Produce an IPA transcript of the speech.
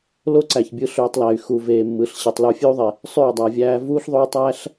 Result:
l o˦ ǀ æ˨ ç bʲ ɯ˧ ɬ øː˧ tˤ l æ˨ y̯ x u˨ v eː˨ mː ɯ˨˦ ɬ ɕ e˧ tˤ l u˧ fʲ ø˦ u̯ ðˤ e˨ | sˤ øː˦˨ dˤ æ˨ vʲ æː˧ v uː˦ ɬ ðˤ o˦ i̯ tˤ æː˦ ɬ

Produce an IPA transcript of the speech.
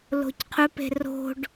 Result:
l o̤ c qʰ ʏ p e̤ r o̤ ɖ

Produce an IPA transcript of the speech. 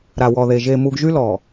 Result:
ɾ a˨ w ɔ˨ ð e˨ ʒ e˨ m u˨ ɡ ʒ y˦ l ɔ˨

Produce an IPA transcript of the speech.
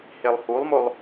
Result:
h e lˠ h u lˠ m o lˠ

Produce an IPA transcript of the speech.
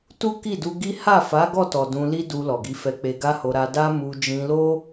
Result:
t u˦ k i˦˨ d u˧ ɡ i˦ h a˦˨ f a˨˦ ɡ ɔ˦˨ t ɔ˨ d ũ˧ l i˦ d u˧ l ɔ˨ ɡ i˨˦ f ɛ˧ k͡p e˧ ɡ a˦ h o˧ ɾ a˧ d a˦ m u˧ d͡ʒ ĩ˧ l o˦

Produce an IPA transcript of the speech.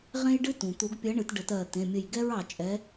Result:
ʁ ẽ˥ j ɖ ɨ˥ t ũ˩ t̪ u˨˩˦ ɡ pʲ ɜ˨˥ ɳ ɨ˨˩˦ t ɖ ə˨˩˦ t ɜ˧˩ t̪ ẽ˩˧˩ mʲ ə˧˩ j ɡ ɛ˥ ɹ ɑ˧˩ t͡ʃʼ ɛ˨˥

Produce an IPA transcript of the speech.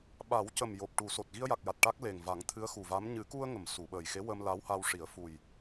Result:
ɓ a˨˩˦ w c ə˨˩ m j o˨˩ p̚ ʈ u˨˩˦ s o˨˩ t̚ ɣ i˧ ə̯ j a˨˩ k̚ j a˨˩ t̚ ʈ a˦˥ k̚ l e˨˩ ŋ v a˨˩˦ ŋ t̪ʰ ɨ˧˥ ə̯ x u˨˩ v a˧˥ m ɲ ɨ˨˩˦ k u˧ ə̯ ŋ ə˨˩˨ m s u˨˩˨ ɓ əː˨˩ j x e˧˥ w ə˧ m l a˧˥ w h a˧ w ʂ i˨˩˦ ə̯ f u˨˩ j

